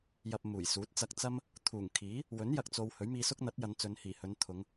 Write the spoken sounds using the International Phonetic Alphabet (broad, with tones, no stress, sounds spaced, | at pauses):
j ɐ˧ p̚ m uː˨˩ j s uː˨˥ t̚ t͡s ɐ˧ k̚ t͡s ɐ˥ m | t̪ʰ uː˨˩ ŋ kʰ iː˨˥ | w ɵ˨˥ n j ɐ˨ k̚ t͡s o˨ w h ɵ˨˥ ɥ m iː˧ s ʊ˥ k̚ n̪ ɐ˨˥ t̚ j ɐ˨˧ n t͡s ɵ˨˧ n h iː˨˩ h ɵ˨˧ n t̪ʰ ʊ˨˧ ŋ